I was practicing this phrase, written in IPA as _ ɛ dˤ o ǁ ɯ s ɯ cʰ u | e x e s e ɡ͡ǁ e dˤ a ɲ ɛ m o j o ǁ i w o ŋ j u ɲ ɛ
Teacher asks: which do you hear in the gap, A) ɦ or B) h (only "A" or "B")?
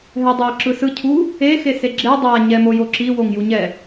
A